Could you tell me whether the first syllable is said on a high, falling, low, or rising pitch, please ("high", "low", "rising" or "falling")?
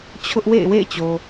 high